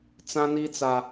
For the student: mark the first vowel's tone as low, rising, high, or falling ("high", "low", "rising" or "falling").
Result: high